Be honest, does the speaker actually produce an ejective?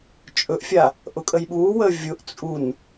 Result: yes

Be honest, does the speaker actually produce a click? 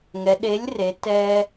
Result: no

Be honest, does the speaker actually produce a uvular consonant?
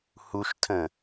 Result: no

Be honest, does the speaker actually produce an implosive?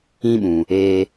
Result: yes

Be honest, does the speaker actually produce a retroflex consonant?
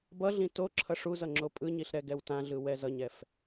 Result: yes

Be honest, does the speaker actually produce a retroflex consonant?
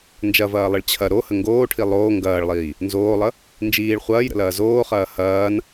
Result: yes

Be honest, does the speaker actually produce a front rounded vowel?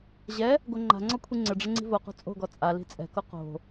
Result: no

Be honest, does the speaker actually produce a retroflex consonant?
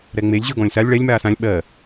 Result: yes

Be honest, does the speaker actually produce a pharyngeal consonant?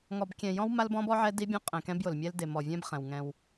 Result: yes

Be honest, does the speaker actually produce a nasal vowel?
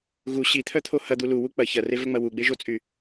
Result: no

